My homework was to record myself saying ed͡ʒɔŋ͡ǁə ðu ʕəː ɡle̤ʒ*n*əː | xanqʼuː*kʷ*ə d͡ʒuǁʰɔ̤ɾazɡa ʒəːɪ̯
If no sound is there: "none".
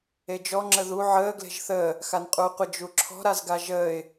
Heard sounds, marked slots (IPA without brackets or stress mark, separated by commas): θ, qʷ